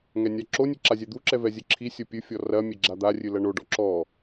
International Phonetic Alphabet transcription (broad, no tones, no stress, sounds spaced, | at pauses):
ŋ ɛ nʲ a ǁ o nʲ ɨ ǁ a zʲ ɛ d̪ u ǁ ɛ v ɛ zʲ ɘ ǁʰ i sʲ o pʲ ɨ fʲ ɔ r ɐ mʲ e ɡ͡ǁ a d̪ a rʲ ɨ l ɐ ɳ o ɖ ɔ ǁ ɔ